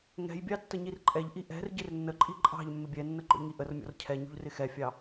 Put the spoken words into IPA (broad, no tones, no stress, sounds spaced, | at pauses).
ŋ ɛ̤ j bʲ ɑ tː ə ɲ i r ǃʼ ɛ ʎ ʔ i ʔ ɛ̤ r ɟ ɪ r nː ə ǃʼ i ǃʼ ɑ̤ ʎ mː ɪ bʲ ɛ nː ə ɡ͡ǃ ɔ̰ ʎ ŋ i ʔ ə r mʲ ɔ̰ r cʰ ɛ ɲ ṳ ʎ r ɪ x ɛ fʲ ɑ